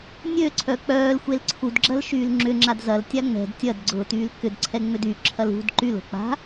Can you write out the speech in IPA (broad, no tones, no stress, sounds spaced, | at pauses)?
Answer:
nʲ ø ǀʰ œ k͡p œː l xʷ e l ǀʰ u d ɡ͡ǁ ɐ l ʃ yː l ŋ͡ǁ ʏ ŋ͡ǁ a d z ɐ l tʲ a ŋ͡m ɛ̤ d tʲ ɐ d ɡ͡ǀ ʊː t yː l k ʏ d ǀʰ ɛ ŋ͡m ʏ d y ǁʰ ɐ l ṳ d ǃ y l o̤ k͡p a̤